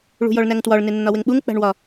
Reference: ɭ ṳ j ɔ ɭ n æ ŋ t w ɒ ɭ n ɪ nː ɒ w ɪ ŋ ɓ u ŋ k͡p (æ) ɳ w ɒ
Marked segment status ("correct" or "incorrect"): incorrect